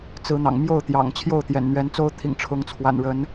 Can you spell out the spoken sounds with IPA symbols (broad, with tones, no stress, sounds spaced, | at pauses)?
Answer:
t͡s ɹ̩˨˦ n̪ ɑ̰˨˩ ŋ m j o˥˨ ʊ̯ t̪ j ɑ̰˨˩ ŋ t͡ɕʰ j o˥˨ ʊ̯ t̪ j ɛ̰˨˩ n n̪ ɥ ɛ˨˦ n t͡s o˦ ʊ̯ t̪ʰ ḭ˨˩ ŋ ʈ͡ʂʰ ʊ˨˦ ŋ t͡sʰ w a̰˨˩ n ɻ ə˨˦ n